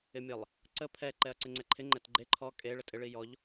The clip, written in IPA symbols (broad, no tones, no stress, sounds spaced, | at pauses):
ɪ mʲ ə lˠ | ǀ ə pʰ ɛ ǃ ɛ ɐ̯ ǀ ɪ ŋ͡ǀ ɛ ǃʰ ɪ ŋ͡ǃ ɛ t ɡ͡ǃ e ǃʰ ɔ kʼ e ɭ ə tʼ ɪ ɭ i j ɔ ʎ